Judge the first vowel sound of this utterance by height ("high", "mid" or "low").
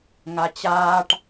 low